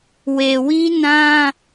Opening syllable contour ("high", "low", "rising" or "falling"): low